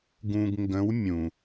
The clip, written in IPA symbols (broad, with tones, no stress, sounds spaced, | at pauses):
ɡ ũ˧ ɡ ŋ ɡ ə̃˧˥ w mʲ ũ˩